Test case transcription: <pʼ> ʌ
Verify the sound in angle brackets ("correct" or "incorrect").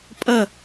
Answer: correct